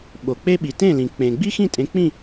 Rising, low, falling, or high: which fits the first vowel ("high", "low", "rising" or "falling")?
low